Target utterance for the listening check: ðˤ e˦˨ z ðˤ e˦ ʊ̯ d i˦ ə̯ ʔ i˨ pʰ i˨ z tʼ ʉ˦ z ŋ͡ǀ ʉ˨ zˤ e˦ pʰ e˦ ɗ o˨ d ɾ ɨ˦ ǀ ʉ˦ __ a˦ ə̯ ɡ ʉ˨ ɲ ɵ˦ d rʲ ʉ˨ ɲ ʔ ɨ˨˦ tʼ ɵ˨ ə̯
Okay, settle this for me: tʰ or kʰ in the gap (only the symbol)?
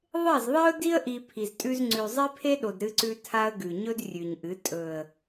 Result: tʰ